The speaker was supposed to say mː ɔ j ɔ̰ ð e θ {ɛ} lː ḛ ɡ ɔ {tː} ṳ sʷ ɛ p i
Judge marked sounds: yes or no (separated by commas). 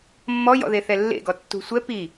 yes, yes